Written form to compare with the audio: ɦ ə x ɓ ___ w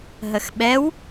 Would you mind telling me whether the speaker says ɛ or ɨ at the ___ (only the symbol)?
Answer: ɛ